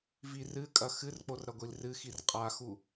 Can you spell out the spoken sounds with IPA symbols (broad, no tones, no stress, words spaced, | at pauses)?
virɨkʼɐ xɨrk͡por ɾɐɡʷilrɨxir qʼaxu